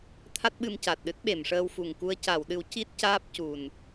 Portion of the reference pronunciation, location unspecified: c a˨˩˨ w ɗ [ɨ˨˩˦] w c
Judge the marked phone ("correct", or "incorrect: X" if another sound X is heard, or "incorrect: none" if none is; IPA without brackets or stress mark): correct